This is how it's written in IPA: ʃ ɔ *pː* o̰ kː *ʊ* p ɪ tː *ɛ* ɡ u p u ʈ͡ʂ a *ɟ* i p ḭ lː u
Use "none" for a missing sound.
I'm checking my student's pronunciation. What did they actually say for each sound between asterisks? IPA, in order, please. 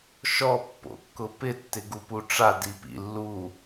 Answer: pː, ʊ, ɪ, d

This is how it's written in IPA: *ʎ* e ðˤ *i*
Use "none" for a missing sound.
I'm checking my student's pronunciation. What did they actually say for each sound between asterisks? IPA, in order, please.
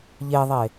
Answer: ʎ, e

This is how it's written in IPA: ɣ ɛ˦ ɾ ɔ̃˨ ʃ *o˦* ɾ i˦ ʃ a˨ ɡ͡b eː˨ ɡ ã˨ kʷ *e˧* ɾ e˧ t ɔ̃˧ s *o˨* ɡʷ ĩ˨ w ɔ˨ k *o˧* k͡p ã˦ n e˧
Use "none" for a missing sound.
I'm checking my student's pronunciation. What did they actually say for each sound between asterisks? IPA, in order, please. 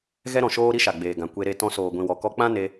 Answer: oː˦, e˧, oː˨, ɔ˧

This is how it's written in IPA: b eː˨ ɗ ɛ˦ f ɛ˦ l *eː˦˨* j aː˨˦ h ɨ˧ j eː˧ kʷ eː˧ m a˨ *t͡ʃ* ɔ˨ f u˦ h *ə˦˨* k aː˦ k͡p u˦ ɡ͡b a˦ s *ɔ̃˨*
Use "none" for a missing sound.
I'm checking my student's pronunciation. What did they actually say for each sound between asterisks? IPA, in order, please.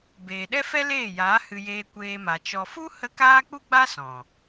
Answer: eː˦˨, t͡ʃ, ə˧, ɔ̃˨

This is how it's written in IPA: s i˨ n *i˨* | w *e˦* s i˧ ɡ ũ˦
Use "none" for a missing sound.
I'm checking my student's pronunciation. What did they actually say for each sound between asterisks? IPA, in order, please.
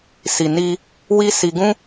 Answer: i˧, i˦

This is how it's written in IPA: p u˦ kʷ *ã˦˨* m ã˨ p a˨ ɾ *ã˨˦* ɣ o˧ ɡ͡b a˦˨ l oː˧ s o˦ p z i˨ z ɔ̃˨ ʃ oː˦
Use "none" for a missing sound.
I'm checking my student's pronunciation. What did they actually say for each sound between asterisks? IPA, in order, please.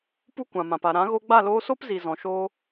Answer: ã˨, ã˨˦

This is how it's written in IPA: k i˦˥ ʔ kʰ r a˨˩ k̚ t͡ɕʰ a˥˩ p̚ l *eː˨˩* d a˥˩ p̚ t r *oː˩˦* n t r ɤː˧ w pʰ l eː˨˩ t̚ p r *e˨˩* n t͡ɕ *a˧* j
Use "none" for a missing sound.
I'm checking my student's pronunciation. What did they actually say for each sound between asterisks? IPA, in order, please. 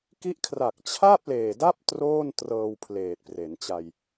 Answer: eː˨˩, oː˥˩, e˩˦, a˧

